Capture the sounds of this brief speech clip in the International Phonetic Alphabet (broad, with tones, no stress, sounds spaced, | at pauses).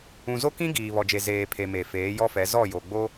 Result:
ũ˨ z o˦ k ĩ˦ ɡ iː˨ β ɔ˨ d͡ʒ e˨ z eː˨ pʰ e˨ m e˨ f eː˨˦ j ɔ˦ f ɛ˨˦ z ɔ˦˨ j o˨ ɡ͡b o˦